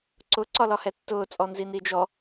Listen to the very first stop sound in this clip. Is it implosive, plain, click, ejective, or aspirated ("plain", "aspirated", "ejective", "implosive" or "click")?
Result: click